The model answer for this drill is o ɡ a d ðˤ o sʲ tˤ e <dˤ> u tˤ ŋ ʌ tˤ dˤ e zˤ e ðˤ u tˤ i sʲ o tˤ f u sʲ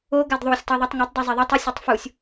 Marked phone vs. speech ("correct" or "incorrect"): incorrect